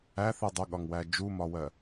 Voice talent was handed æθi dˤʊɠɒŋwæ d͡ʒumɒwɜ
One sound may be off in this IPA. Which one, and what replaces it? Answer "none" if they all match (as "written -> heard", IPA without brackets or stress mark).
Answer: none